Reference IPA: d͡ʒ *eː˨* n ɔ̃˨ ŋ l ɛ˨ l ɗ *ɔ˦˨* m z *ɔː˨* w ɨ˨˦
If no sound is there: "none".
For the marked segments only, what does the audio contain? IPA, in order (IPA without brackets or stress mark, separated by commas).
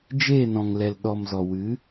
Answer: eː˦˨, ɔ˨, ɔ˨